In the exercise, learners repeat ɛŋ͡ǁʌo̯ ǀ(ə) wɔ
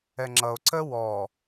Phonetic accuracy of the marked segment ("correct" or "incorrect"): correct